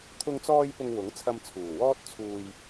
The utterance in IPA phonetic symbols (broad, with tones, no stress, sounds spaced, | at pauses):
t̪ʰ ʊ˧ ŋ t͡s ɔː˧ j p ʊ˨ ŋ w ʊ˨˥ ŋ t͡sʰ ɐ˧ m t͡sʰ uː˨˩ w ɔː˥ t̚ t͡sʰ uː˨ j